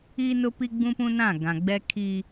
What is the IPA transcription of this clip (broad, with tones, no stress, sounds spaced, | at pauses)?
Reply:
iː˦ n ʊ˦ p i˦ ɡ͡b ũ˦ p ũ˦ n ã˦˨ ɡ ã˨ ɡ͡b ɛ˦ kʰ i˦